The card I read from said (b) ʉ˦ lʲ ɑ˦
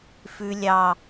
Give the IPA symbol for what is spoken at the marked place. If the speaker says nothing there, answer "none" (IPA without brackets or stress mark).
f